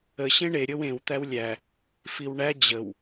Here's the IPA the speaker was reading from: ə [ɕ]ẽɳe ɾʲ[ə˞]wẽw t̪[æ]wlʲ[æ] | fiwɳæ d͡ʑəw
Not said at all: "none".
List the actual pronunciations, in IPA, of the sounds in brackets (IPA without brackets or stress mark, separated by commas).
ɕ, ɤ, æ, æ